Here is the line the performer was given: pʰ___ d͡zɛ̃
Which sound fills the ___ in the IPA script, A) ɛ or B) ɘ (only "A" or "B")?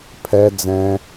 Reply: A